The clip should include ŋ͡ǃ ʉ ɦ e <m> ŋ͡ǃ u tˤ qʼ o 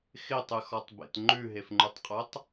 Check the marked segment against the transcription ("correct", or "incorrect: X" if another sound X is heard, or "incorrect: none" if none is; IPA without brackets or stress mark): incorrect: f